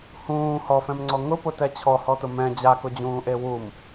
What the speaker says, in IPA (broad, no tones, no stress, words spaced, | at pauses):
hũː hɔfɛ̃mŋ͡ǀɔ ŋʊpʊtɛ t͡ɕʰɔhɔtʊ mɛ̃ d͡ʑakʊd͡ʑũːʔe wum